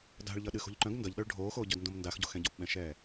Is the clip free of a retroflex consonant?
no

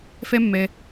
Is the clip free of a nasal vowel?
yes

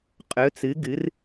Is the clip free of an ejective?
no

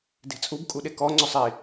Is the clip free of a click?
no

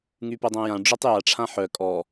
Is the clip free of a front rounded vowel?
no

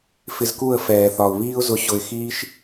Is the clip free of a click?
yes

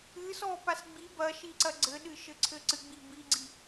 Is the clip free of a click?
no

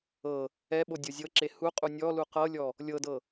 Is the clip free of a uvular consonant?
no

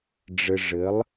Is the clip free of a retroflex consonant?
no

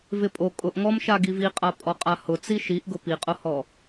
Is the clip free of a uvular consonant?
no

